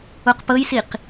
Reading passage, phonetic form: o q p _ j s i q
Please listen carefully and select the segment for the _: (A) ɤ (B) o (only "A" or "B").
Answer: A